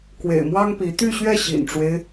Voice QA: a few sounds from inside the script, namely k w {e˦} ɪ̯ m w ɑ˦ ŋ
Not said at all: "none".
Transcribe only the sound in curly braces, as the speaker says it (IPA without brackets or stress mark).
ḛ˨˩